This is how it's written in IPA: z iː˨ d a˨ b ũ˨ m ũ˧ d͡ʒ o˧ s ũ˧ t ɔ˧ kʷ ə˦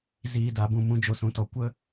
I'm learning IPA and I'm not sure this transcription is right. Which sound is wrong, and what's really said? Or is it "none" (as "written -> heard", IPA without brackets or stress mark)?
none